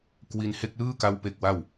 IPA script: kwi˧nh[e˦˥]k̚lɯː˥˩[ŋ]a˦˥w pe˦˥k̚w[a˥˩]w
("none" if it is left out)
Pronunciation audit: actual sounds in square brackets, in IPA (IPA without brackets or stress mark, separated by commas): e˦˥, k, a˥˩